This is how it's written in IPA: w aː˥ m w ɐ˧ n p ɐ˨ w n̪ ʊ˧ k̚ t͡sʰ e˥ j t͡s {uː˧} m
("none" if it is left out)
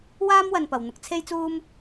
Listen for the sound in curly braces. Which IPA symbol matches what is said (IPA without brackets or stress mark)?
uː˥